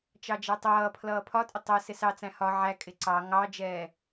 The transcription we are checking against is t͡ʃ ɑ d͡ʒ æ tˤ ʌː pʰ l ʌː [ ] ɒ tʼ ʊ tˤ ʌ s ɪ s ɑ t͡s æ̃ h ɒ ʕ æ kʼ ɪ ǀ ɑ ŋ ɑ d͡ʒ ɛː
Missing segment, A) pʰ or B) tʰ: A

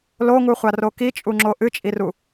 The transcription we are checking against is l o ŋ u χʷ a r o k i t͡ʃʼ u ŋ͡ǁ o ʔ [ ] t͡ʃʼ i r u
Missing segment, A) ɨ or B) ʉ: A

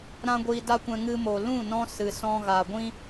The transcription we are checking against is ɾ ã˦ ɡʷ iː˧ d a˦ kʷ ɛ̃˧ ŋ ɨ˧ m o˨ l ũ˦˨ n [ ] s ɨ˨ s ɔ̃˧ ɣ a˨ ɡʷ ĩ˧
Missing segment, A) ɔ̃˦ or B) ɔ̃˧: B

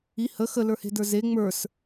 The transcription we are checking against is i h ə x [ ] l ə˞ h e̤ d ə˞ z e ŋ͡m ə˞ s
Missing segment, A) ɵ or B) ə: B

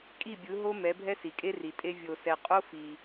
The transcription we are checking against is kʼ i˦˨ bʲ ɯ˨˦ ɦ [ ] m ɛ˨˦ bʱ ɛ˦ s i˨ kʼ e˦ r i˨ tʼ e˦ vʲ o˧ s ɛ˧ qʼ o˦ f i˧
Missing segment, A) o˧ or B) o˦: B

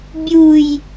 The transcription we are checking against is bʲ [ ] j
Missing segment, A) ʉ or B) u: B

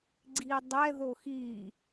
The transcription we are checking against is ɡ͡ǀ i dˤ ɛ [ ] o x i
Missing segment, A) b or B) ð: B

